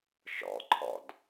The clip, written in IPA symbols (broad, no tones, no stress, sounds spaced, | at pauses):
ʃ ɔ̰ ǃʰ ɔ̰ d